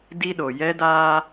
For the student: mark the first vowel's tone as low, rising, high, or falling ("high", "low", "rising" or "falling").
high